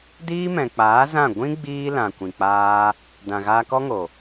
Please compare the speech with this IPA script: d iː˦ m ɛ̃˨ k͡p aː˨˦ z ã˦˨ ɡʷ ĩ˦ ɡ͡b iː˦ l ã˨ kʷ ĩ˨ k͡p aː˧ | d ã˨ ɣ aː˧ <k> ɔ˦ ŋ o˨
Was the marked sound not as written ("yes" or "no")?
no